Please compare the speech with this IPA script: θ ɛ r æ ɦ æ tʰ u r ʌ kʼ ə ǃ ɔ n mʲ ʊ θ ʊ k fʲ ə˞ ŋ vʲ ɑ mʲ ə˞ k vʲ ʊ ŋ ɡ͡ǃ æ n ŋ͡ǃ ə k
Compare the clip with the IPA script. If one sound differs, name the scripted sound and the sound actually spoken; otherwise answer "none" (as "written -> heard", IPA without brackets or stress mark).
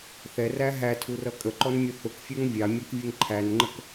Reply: ɡ͡ǃ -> ǃʰ